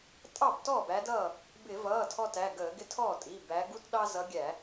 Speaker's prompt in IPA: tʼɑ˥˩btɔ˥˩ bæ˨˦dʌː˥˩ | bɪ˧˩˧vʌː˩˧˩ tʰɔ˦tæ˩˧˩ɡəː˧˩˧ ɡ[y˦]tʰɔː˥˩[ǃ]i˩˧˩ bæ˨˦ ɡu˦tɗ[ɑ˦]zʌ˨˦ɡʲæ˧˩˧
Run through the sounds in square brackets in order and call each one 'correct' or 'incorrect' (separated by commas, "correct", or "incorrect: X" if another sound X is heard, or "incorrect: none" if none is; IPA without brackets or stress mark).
incorrect: ɪ˦, incorrect: tʼ, correct